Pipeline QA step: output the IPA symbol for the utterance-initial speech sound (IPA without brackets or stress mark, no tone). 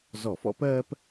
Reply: z